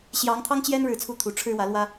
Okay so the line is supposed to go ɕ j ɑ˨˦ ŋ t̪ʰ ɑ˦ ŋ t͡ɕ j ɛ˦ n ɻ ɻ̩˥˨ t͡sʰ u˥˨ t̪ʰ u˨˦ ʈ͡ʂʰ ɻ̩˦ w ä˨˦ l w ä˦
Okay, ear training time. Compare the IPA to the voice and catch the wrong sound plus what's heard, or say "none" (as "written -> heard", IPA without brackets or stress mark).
none